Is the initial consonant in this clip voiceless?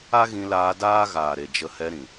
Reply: no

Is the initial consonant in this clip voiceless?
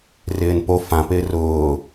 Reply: no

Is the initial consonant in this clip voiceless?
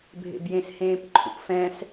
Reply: no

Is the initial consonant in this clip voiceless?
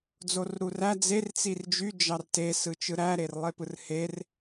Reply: no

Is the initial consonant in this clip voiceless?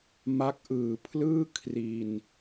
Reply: no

